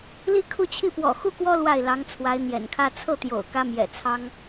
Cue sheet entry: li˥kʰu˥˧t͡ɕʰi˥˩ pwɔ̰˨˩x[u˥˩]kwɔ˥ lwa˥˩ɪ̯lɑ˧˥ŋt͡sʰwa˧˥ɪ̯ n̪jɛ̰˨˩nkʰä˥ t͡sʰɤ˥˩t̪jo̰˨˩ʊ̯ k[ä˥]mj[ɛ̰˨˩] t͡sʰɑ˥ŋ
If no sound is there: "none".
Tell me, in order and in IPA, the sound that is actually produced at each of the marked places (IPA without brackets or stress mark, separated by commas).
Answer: u˥˩, ä˥, ɛ̰˨˩